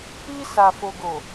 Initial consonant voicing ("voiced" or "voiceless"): voiceless